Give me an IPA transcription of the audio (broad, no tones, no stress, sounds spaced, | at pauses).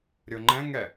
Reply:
ɾʲ ɵ ŋ͡ǃ ɛ̃ ŋ ɛ